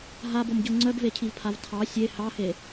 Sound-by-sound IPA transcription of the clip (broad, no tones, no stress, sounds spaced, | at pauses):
ɦ a b o m ɟ ɤ ŋ͡ǀ œ b v e cʰ i v pʰ a v tʰ ɑ sʲ e h ɑ h e